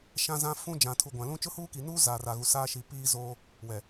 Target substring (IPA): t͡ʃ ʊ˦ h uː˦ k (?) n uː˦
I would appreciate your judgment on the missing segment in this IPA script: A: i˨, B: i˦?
A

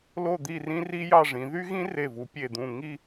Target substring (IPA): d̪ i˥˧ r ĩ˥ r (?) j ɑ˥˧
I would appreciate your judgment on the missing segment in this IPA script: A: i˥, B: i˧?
A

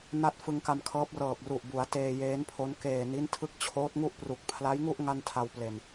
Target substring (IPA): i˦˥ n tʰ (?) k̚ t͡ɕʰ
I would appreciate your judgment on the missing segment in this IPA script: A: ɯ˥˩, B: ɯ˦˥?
B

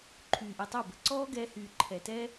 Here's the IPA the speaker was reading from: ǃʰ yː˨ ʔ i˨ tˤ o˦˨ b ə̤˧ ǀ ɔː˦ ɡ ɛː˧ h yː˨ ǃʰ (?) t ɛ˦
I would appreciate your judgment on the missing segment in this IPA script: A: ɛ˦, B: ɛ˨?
B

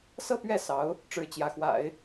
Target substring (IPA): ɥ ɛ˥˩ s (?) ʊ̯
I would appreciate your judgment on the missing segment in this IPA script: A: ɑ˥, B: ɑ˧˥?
B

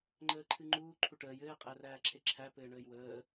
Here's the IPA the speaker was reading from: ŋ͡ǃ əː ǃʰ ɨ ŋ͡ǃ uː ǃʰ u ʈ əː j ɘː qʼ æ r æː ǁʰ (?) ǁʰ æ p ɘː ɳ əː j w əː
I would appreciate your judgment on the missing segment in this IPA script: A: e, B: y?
A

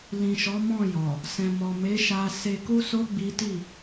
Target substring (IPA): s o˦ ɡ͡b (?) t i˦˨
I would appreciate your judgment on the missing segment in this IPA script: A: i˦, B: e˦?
A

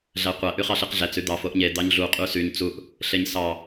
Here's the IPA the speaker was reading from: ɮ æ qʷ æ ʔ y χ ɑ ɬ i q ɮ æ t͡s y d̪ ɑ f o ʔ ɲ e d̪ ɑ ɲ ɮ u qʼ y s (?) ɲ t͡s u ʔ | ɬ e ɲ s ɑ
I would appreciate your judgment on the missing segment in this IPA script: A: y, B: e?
A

